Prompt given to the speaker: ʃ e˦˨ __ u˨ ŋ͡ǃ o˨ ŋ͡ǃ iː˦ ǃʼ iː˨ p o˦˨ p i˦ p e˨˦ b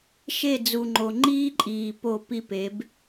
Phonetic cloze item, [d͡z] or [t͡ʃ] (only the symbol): d͡z